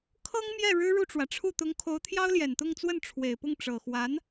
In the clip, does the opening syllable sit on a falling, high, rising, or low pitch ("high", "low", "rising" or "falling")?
high